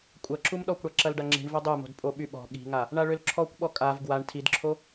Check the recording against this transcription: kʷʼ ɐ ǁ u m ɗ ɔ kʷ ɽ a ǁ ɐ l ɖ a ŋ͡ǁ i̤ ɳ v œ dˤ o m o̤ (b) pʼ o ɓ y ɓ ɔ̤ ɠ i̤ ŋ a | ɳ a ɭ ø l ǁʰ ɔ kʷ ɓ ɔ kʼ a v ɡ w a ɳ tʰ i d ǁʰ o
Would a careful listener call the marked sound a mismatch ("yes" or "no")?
yes